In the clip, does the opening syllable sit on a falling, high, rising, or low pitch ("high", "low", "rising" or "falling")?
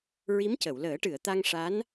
rising